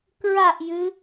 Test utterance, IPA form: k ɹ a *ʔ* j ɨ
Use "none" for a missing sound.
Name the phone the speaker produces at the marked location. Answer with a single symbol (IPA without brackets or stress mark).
ʔ